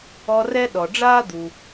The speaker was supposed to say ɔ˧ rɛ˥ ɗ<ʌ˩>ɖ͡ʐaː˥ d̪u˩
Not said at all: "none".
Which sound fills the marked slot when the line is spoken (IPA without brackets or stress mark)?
ɔ˩